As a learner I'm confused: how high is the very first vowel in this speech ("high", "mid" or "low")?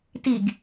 high